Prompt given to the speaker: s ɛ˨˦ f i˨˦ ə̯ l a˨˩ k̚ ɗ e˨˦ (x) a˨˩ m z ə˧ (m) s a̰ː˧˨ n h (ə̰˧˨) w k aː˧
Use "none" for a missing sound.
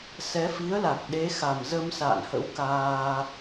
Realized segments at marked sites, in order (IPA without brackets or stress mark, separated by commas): x, m, ə̰˧˥